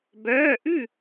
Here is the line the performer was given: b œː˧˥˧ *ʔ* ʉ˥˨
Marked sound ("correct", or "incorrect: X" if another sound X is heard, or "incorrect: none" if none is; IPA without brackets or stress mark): correct